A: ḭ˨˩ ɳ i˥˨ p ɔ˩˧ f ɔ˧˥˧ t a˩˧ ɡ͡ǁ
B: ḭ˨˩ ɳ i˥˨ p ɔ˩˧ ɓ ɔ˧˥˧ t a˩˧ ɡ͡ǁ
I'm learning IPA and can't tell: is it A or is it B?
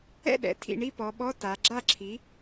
B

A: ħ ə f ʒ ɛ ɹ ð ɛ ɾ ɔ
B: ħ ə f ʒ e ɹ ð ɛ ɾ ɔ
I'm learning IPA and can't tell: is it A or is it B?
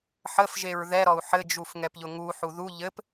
B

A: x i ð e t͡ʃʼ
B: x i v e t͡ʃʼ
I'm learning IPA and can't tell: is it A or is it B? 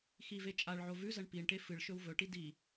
B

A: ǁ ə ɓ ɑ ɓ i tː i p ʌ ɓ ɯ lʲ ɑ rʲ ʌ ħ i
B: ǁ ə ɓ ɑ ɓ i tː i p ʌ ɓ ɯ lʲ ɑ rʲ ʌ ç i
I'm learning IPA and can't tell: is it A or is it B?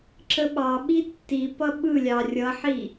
A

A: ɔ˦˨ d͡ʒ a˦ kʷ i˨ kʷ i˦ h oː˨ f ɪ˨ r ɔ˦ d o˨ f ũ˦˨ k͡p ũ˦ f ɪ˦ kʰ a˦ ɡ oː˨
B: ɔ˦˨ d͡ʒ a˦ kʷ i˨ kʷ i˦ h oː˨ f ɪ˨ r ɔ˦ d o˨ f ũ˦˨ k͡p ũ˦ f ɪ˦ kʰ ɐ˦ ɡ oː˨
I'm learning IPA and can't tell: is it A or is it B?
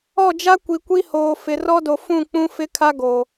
A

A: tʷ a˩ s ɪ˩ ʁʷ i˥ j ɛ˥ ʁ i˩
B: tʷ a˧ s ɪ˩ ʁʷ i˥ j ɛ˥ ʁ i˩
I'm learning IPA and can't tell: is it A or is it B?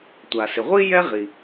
A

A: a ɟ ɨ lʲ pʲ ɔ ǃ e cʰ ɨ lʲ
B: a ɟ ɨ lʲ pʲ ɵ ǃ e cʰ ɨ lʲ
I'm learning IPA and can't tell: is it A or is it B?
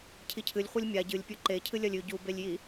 B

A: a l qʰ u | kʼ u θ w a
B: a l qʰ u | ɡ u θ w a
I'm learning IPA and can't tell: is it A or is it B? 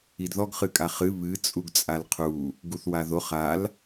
B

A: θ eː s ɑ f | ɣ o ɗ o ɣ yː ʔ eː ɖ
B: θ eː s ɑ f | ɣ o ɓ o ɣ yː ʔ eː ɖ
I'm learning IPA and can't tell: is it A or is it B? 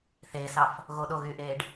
A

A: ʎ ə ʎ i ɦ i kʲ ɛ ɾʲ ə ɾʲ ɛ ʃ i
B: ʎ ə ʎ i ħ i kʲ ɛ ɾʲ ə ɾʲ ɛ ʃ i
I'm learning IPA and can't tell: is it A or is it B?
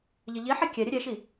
B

